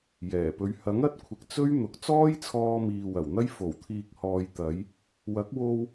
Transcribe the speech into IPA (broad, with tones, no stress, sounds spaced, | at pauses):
j ɛː˨˩ p ɵ˨˧ ɥ h ɐ˨˥ ŋ ɐ˧ t̚ kʷʰ ɪ˨ k̚ t͡s ɵ˥ ɥ n̪ ʊ˨˥ k̚ t͡s ɔː˥ j t͡sʰ ɔː˧ m iː˨ w ɐ˨˩ w n̪ ɐ˥ j f o˨˩ w t̪ʰ iː˨ k̚ h ɔː˨ j t̪ ɐ˨˧ j | w ɐ˨˥ k̚ w o˧ w